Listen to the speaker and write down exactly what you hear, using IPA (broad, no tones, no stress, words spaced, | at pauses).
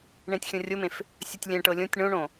ɳẽtʲxʲõrʲomẽf | sʲɵtʲlʲɛ̃ʈɤ lʲõtʲ ɳõɳõ